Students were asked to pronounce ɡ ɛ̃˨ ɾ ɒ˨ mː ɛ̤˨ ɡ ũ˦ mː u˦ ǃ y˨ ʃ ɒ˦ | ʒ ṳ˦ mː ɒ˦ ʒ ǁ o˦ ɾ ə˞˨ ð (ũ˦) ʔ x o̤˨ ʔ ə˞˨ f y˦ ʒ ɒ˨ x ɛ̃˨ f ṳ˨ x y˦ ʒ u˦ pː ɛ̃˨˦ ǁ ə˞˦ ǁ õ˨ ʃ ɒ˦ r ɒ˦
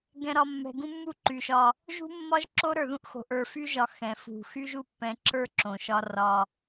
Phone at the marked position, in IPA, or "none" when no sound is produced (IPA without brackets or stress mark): ũ˦